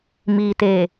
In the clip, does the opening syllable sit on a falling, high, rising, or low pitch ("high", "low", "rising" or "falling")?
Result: low